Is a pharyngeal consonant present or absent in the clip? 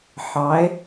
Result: present